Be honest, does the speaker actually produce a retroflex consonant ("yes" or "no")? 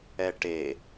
yes